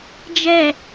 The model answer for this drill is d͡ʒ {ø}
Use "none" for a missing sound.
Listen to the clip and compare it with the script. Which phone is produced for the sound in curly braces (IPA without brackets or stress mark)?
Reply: ɛ